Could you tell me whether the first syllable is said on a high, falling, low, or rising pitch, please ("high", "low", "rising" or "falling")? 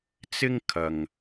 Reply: high